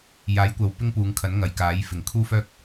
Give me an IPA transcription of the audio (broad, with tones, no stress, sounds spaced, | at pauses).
j aː˨˥ j kʷ ɐ˨ w p ɪ˥ ŋ p uː˨˧ ŋ kʰ ɐ˨˥ n ŋ ɐ˨˩ j k aː˨˥ j f ɪ˨˩ ŋ kʰ uː˥ f œː˥ k̚